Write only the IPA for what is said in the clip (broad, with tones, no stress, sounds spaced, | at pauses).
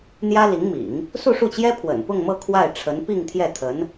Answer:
n̪ j ä˥ l i˧˥ ŋ m ḭ˨˩˦ ŋ | s u˥˧ ʂ u˥˩ t͡ɕ j ɛ˥ pʰ w ə̰˨˩ n p ʊ˥˧ ŋ m ɤ˥˧ kʰ w a˥˩ ɪ̯ ʈ͡ʂʰ ə˧˥ n p i˥˧ ŋ t̪ʰ j ɛ˥˩ t̪ʰ ə˧˥ n